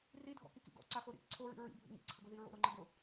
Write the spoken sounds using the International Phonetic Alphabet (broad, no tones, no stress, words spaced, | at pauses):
ridʱɔ̰ kikḭɡɔ̰ ǀaxoɾḭ ǀʰoɹḭ ɹḭbʱṵ ŋḭǀʰəɡo ðiɹo̰ɾoŋ͡ǃə ɡʊ